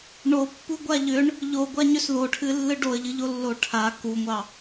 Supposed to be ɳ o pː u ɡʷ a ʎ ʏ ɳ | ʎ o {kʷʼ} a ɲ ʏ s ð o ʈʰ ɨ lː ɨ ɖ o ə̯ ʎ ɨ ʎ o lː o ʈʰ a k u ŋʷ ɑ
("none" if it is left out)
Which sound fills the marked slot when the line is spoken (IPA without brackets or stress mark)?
ɡʷ